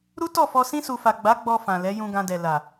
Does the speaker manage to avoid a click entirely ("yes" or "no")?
yes